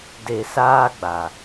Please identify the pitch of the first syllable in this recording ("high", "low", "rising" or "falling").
low